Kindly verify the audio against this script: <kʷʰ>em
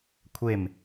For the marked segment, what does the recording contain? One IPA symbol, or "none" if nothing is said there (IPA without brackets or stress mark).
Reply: kʷʰ